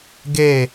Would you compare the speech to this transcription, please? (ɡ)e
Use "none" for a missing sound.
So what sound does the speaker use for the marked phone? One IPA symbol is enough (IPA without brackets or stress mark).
ɡ